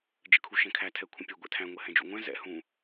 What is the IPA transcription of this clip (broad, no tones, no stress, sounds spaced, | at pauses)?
d͡ʒ ə kʰ u ʃ ɛ̃ kʰ æ tʰ ɛ kʷʰ ə̃ pʲ ɛ ɡʷ ɛ̰ tʰ æ̃ ŋʷ ɛ h ɛ̃ d͡ʒ ṵ ŋʷ ɛ̃ z ɛ̰ h ũ